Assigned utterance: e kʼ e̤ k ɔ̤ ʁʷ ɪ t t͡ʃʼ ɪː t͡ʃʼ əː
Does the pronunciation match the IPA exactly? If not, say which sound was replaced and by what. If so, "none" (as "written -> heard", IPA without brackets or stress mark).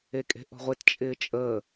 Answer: k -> ʔ